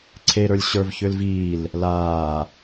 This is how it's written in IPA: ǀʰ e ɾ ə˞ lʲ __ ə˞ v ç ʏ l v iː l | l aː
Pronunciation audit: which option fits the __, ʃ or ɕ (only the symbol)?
ɕ